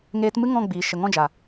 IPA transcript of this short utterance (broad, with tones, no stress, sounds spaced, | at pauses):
ŋ eː˧ t m ɨ˦ ŋ ɔ̃˦˨ ɡ͡b iː˨ ʃ ə˨ ŋ ɔ̃˦˨ d͡ʒ a˨